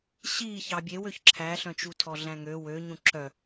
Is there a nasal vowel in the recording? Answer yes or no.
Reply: yes